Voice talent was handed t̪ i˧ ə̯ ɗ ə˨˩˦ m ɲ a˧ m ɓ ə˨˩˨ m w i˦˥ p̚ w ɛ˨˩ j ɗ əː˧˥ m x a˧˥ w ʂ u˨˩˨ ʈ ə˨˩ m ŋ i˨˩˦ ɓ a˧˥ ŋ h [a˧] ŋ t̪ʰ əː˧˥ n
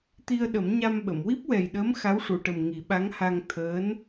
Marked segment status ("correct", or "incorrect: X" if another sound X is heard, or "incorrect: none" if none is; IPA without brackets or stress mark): correct